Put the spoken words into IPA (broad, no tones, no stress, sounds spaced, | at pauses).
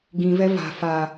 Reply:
ɡ ĩ v ɛ v a̤ f a